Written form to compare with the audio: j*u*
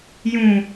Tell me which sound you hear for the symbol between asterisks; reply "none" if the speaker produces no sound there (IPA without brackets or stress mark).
ũ